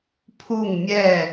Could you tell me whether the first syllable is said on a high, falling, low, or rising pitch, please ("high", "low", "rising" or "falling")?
falling